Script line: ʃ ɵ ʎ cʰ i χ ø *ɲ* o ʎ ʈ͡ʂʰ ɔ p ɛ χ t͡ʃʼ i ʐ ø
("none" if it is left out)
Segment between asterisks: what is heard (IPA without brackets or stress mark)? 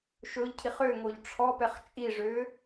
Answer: ŋ